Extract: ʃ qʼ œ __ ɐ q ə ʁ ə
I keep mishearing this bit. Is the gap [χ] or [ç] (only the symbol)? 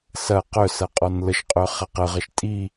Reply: χ